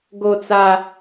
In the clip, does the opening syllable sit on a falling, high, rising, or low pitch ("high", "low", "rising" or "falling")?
high